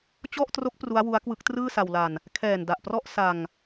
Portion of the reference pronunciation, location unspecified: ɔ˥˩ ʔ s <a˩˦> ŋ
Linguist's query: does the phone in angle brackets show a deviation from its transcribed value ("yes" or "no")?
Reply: yes